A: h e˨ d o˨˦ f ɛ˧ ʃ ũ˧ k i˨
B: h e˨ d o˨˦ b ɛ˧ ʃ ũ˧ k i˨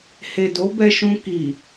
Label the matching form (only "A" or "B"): B